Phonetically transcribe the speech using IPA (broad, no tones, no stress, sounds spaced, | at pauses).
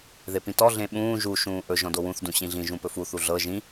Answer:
ð e p ĩ t ɔ ɮ ẽ ɓ ũː ʒ u ʃ ũː ʔ ɵ ʒ ɔ̃ d o w ũ θ d ũ ɕ ĩ ɮ ĩ ʒ ũ p ɵ f u θ u ɮ ɤ ʒ ĩ